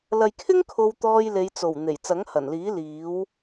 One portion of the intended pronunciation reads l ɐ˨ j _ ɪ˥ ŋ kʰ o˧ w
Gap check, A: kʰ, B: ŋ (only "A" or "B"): A